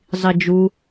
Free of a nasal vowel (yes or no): yes